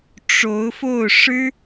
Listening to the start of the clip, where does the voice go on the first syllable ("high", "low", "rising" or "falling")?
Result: rising